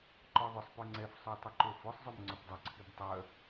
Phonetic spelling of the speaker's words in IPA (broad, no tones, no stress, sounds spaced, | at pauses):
ǃ ɔ ðˤ ʏ sˤ p ø ŋ͡ǀ ɛ f sˤ ø tˤ ʏ ǃ o f ʊ sˤ zˤ o m ŋ͡ǀ ʊ p dˤ ʊ ǀʰ i b tˤ œ